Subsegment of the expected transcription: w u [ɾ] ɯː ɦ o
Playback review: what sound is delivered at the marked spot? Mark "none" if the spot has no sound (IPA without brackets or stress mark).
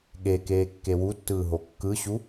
tː